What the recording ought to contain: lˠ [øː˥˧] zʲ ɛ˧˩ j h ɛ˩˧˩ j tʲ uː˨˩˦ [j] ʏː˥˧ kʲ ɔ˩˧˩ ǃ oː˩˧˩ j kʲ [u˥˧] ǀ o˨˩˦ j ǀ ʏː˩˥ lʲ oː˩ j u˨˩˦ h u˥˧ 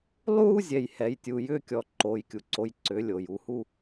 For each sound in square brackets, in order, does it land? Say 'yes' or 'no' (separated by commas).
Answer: no, yes, no